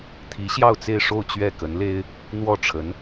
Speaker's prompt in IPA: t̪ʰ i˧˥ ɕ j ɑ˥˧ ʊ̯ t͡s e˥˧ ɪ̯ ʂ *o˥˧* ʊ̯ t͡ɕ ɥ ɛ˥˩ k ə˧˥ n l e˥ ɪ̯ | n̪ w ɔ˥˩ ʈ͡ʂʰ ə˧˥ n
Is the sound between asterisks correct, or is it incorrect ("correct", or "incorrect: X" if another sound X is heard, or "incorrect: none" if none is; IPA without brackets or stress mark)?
correct